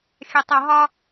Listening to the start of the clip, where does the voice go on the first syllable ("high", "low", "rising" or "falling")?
low